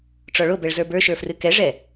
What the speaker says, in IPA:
ʈ͡ʂɔɭobɛɭzə˞ bə˞ʃə˞frɨ kɛʐɛ

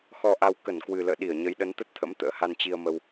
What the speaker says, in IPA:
xɔ˧ʔa˧w kə˧˩nkwɨ˨˩lə̰ː˧˨ ɗi˧˩ə̯ɲə˨˦j ɗə˨˦nt̪ə˦˥t̚t̪ʰə̰˧˥m t̪ə̰ː˧˥ha˧nt͡ɕi˧ə̯mə˧w

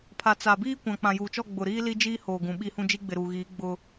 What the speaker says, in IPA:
pʰa˨t͡sa˨biː˦ kʷã˨k͡pã˨juː˨t͡ʃɔ˦˨ ɡ͡bʊ˨ɾiː˦ li˦d͡ʒiː˦hoː˨ ɡũ˨ɓi˦hũ˦ d͡ʒi˦ɡ͡bɪ˨ɾuː˨ɣiː˨˦ ɡ͡bʊ˦

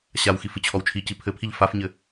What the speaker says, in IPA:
ɕawxif ɨt͡ɕʰɔwt͡ʃʰici pʰɘpʰiʎ fafɲɘ

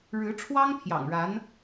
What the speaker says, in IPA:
ɻɻ̩˧˥ʈ͡ʂʰwɑ˥ŋ pʰjɑ̰˨˩ŋɻa˧˥n

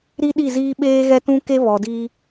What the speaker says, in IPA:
ɾi˦ɗi˦˨ziː˦ ɓeː˦ɣɛ˦tũ˦ke˦ βɔ˨diː˦

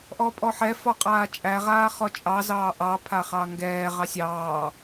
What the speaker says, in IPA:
ʔɔːpʼɔħɛ fɔqʼaːt͡ʃʼæ ʁaːχɔt͡ʃʼɑ zɑːʔɑ pʰaχɑŋɡɛː ʁɑsʲɑː

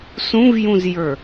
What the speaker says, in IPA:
sũvjũzjə˞

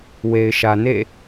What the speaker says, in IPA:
we˨ɪ̯ʃä˨ nḛ˦˨

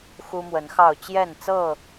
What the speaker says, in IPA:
xu˦mwə˨˦nxɑ˥˨ʊ̯ t͡ɕjɛ˥˨nt͡sɤ˥˨

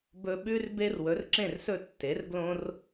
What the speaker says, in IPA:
bɵ˧ɓʉ˥rbe˥r wɵ˩˥rǁẽ˥˩rsɵ˥˩ tːe˩˥rɡlõ˥r

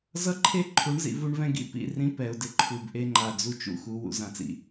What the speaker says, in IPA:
zʌ˦ǃʰe˦ǃʰu˨˦ɳzḭ˨ vu˦ɳvɛ̃˦ɡḭ˦ pḭ˦˨rĩ˦ pɛ˨ʊ̯dɪ˦ ǃʰu˨bʔe˦ŋ͡ǃa˨ d͡zu˦t͡ʃṵ˦xu˨˦ wṵ˨zã˨t͡sḭ˨

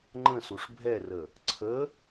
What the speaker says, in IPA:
ŋ͡ǃə̃suʂ bʱɛrə | ǀʰə

